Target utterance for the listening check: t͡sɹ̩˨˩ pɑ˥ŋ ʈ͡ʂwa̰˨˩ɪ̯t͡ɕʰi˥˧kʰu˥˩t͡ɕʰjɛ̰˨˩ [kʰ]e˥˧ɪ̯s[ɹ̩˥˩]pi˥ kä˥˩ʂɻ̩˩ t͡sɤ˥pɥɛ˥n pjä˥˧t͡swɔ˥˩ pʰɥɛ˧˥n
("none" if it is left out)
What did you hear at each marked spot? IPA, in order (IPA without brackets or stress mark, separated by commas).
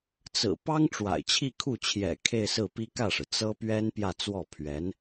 kʰ, ɹ̩˥˩